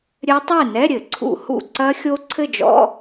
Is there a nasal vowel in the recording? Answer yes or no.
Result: no